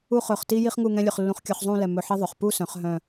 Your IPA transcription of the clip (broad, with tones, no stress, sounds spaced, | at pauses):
u˥˧ χ ɵ˧˩ χ t i˥ j i˥ χ ŋ u˥˧ ŋ ɛ̃˥ lʲ ɵ˧ χ lː ũ˧ χ kʲ œ˧ χ zˤ ũ˥˧ l ɛ˧˩ m ɵ˧˩ ħ i˥ ðˤ ɵ˩˧ χ p u˥˧ s œ̃˩˧ χ ɦ œ̃˧˩